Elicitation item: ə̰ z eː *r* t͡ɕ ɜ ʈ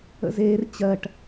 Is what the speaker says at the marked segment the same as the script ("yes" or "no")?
yes